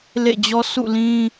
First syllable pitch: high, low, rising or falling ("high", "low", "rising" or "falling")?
falling